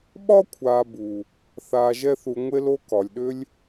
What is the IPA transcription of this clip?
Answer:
ɓ ɒ˦ kʷʰ aː˨ b u˨ | θ aː˧ ʒ ɛ˦ θ u˧ ŋʷ e˦ l o˦ k ɒ˨ lʲ ɗ ʏ˦ lʲ

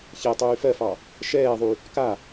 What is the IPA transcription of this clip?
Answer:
ç ɛ tˤ yː f ɜ f ɑ | ʃ ɛː ðˤ y | k a

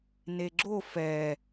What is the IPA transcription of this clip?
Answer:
n e ɡ͡ǁ o f ɛ

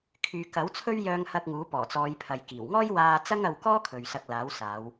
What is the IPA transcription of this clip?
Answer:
kʰ yː˨ k ɐ˨˥ w t͡sʰ ɵ˥ ɥ j œː˧ ŋ h ɐ˧ k̚ ŋ uː˨˥ p ɔː˨˩ t͡s ɔː˨˧ j pʰ ɐ˨ j k iː˨˩ w ŋ ɔː˥ j w aː˧ t͡s ɐ˥ ŋ ɐ˧ w k ɔː˥ kʰ ɵ˨ ɥ s ɐ˧ k̚ l aː˨˥ w s aː˨˧ w

